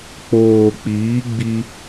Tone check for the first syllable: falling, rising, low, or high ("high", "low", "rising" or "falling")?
low